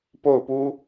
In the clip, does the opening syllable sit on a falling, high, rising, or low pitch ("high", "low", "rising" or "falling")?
falling